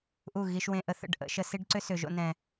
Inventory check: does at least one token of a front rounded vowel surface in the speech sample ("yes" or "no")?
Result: yes